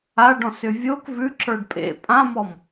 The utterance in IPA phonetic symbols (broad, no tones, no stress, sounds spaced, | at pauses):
a ɖ ɔ̃ s ʏ vʲ o k v ʉ ǁ ə˞ ɖ pʼ ḛ pʼ ã m ɔ m